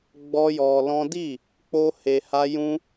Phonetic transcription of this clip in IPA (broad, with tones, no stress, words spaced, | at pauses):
ɡ͡bɔ˦jɔ˧ lɔ̃˦ di˦˨ | k͡po˦he˧ha˦ jũ˦